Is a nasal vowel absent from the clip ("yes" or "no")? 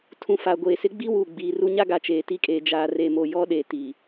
no